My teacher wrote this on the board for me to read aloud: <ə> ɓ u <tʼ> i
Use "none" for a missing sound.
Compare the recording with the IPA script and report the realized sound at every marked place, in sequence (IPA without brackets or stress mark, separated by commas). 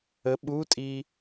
ə, tʼ